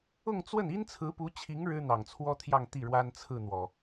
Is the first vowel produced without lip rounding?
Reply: no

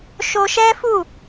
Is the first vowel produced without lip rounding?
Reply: no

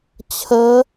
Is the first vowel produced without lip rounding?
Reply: yes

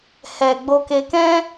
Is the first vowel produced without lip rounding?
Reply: yes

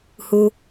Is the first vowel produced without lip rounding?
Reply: no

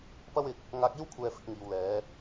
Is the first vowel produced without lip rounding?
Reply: yes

